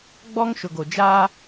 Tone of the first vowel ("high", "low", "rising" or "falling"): high